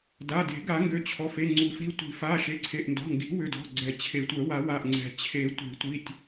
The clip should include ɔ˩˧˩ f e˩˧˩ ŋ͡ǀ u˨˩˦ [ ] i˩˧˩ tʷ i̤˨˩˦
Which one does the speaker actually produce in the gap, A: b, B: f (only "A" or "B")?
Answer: B